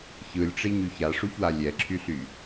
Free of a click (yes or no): no